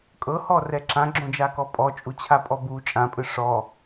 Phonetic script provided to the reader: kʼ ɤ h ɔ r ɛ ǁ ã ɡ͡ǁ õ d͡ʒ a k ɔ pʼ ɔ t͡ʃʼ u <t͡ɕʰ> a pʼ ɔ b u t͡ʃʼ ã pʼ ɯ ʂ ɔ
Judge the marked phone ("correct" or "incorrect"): correct